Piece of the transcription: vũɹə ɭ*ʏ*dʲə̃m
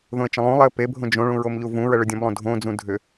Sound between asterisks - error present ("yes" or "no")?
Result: no